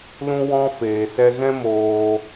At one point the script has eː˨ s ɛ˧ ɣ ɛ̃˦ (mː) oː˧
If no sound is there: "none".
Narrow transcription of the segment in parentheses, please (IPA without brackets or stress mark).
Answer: m